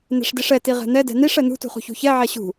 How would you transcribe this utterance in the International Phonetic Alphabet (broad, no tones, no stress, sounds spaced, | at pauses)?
n ɛ̤ ʂ d i ʂ ɛ t i ʁ ɛ̤ n̪ ɛ d ɛ̤ n i ʂ ɛ n̪ ṳ t ṳ χ ṳ ç ṳ ç ɛ ʕ ɛ ɕ ṳ